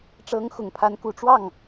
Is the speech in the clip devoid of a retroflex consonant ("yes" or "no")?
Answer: no